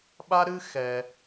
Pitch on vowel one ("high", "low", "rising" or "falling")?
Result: high